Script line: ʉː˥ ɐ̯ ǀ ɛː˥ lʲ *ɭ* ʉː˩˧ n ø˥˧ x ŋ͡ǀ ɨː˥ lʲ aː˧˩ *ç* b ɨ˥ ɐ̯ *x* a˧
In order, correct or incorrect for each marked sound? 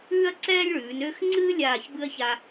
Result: correct, correct, incorrect: ç

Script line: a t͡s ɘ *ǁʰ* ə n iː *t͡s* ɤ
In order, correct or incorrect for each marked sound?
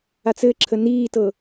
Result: correct, incorrect: t

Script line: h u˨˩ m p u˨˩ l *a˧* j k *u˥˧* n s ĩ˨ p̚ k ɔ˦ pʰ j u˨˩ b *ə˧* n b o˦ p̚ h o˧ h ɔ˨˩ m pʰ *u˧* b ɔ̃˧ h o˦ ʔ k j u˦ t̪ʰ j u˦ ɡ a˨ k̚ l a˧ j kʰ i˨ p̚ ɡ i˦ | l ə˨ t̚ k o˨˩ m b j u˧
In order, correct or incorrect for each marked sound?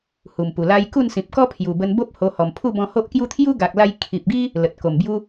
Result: correct, correct, correct, incorrect: u˥˧

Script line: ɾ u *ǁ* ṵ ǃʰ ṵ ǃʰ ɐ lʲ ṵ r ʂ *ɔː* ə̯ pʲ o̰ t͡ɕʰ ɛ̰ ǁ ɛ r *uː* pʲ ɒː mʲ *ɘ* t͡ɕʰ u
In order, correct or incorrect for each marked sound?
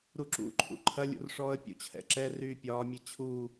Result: correct, correct, incorrect: yː, incorrect: e

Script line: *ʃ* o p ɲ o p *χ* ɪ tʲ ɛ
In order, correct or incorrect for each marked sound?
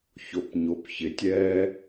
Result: incorrect: ç, incorrect: ç

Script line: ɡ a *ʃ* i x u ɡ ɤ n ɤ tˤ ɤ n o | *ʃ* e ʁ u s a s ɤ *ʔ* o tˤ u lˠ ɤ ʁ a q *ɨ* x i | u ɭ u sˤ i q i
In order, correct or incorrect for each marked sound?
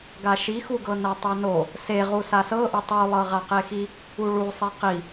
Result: correct, incorrect: s, correct, incorrect: e

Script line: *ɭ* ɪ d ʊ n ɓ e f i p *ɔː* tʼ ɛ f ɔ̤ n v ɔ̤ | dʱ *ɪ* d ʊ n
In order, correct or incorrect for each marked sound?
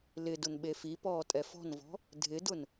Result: incorrect: l, correct, correct

